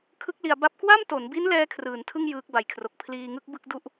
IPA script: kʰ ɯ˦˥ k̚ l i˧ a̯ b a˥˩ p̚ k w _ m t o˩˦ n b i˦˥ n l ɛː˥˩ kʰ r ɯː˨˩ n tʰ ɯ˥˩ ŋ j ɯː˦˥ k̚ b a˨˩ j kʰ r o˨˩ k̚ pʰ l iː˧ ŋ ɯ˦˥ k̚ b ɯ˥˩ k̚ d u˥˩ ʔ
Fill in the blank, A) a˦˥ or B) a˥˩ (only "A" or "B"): B